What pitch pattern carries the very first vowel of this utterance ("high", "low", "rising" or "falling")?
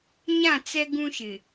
falling